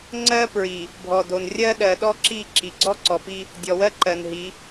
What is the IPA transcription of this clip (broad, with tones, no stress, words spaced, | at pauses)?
ŋ͡ǀɜ˦pɹi˨ | bʱɔ˨do˨n rʲɜ˦ ɗɜ˨ɗɔ˦ǁi˦˨ ǁi˨ ɡ͡ǀɔ˦ǀɔ˨pi˦ | dʲɔ˨wɜ˦ǃɜ˨n ɦi˨˦